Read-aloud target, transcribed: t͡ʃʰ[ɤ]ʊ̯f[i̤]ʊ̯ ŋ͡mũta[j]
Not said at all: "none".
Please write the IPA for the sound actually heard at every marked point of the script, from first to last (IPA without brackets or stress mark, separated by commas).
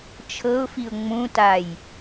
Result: ɤ, i, j